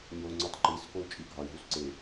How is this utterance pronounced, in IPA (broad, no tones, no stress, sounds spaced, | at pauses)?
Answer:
ɲ o ŋ͡ǀ u tˤ ǃ i s k o u̯ t͡ʃʼ i ɡʱ ɒ i̯ ɦ u s ǀ e